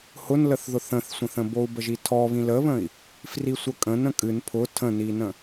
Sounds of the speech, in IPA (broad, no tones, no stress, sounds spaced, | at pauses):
h ʊ n l ə θ ð ʊ θ ə̃ θ sʷ ə̃ θ ə̃ b o u̯ b ə ʒ i tʰ ɔ β ĩ l ə β ə̃ i̯ | f r i sʷ ə kʼ ə̃ n ə̃ kʼ ɨ n pʰ ʊ tʰ ə̃ n i n ə̃